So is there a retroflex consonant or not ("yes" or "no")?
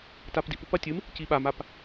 no